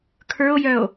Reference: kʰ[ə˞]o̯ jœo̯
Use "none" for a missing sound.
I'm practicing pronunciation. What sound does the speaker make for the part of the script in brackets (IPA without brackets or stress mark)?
ə˞